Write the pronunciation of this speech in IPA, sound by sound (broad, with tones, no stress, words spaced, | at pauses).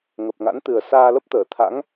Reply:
ŋə˨˩p̚ŋa̰˧˥nt̪ɨ˨˩ə̯ saː˧lə˦˥p̚t̪əː˧˩t̪ʰa̰˧˥ŋ